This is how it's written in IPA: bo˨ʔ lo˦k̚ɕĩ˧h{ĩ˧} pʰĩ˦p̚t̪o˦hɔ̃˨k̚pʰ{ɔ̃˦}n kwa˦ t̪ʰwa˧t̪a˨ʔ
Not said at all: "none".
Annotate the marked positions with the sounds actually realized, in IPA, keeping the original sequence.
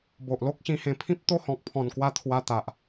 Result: ẽ˧, ɔ̃˨˩

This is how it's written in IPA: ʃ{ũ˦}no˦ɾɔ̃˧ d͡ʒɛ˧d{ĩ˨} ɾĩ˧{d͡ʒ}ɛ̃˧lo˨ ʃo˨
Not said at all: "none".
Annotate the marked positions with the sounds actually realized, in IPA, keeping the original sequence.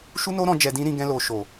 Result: u˦, ĩ˦, ɡ

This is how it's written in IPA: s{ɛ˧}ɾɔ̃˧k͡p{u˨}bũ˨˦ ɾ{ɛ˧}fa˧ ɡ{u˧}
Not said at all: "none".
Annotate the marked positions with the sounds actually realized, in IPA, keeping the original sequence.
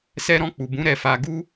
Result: ɛ˧, u˨, ɛ˧, u˦

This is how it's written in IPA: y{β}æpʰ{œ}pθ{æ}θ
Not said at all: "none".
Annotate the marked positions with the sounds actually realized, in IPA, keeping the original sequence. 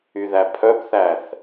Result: ð, œ, æ

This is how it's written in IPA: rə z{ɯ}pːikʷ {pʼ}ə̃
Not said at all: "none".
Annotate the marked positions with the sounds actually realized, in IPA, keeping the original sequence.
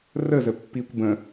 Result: ə, b

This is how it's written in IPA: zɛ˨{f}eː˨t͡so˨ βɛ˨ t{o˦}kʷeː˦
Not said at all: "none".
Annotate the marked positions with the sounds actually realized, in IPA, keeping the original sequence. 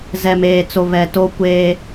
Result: m, o˦

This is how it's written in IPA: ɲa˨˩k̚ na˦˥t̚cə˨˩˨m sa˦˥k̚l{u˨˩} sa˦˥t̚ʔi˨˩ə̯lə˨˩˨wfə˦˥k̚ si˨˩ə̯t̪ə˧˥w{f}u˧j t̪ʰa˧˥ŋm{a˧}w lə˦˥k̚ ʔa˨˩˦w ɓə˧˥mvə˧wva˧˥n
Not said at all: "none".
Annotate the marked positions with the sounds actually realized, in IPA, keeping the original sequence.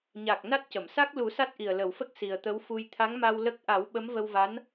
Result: u˨˩˦, f, a˧

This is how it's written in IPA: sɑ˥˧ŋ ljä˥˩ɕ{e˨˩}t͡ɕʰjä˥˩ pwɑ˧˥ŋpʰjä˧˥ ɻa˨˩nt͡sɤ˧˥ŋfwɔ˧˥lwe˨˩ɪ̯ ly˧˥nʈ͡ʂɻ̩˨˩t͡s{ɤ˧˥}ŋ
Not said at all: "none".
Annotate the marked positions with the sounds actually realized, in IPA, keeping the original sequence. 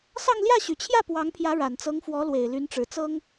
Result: y˨˩, ɤ˥

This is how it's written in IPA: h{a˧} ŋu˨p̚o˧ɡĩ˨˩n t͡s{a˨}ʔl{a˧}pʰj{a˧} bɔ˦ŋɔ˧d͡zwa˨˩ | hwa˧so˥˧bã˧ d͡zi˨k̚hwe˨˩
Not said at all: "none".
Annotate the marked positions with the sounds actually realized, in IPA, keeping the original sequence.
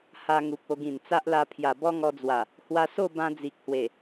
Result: a˧, a˦, a˧, a˨˩

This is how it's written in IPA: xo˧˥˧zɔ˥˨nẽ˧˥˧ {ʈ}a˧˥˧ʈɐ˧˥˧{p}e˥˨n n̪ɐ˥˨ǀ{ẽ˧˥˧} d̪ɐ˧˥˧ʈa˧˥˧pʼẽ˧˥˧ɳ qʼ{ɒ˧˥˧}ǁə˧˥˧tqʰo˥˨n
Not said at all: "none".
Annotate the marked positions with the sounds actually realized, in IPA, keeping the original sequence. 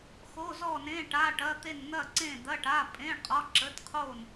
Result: ʈ, t̪, ẽ˥˨, ɒ˧˥˧

